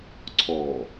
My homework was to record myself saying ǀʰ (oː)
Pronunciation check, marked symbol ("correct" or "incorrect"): incorrect